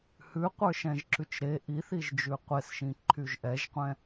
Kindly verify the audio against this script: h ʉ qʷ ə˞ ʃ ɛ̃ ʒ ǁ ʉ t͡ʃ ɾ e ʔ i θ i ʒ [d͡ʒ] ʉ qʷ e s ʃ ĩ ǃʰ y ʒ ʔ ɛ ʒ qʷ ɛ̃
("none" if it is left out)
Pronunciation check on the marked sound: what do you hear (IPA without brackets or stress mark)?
d͡ʒ